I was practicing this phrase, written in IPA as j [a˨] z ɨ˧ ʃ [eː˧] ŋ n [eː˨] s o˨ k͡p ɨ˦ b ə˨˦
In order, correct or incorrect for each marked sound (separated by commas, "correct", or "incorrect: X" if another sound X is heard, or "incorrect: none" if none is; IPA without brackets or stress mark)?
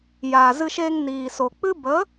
incorrect: aː˨, correct, incorrect: iː˨